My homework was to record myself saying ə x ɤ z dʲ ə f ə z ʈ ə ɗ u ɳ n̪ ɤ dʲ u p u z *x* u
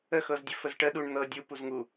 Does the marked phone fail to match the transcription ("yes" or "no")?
yes